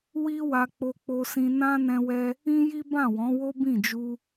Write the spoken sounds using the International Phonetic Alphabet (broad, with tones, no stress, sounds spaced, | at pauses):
w i˦ w a˧ k͡p o˧ k͡p o˧ s ĩ˧ n ã˦ n ɛ̃˧ w ɛ˧ | ĩ˦ j i˦ b ã˦˨ w ɔ̃˨˦ w o˦ b ĩ˦˨ d͡ʒ u˧